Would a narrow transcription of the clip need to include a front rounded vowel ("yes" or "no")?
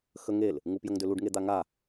yes